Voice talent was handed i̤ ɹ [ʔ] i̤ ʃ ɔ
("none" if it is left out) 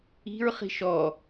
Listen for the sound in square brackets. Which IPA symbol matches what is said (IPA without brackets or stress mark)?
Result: χ